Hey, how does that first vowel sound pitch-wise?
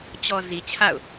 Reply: low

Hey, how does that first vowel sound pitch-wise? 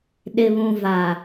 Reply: low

